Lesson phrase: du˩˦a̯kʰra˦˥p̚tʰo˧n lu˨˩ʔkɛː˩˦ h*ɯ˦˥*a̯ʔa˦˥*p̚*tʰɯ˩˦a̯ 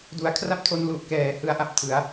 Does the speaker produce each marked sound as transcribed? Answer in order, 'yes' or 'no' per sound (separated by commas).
yes, yes